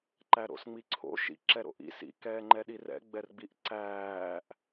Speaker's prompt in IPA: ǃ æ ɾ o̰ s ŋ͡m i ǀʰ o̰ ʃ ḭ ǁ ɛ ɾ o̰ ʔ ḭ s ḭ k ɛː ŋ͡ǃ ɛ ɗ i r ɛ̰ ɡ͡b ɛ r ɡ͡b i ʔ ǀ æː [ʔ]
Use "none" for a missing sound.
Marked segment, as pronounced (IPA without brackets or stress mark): ʔ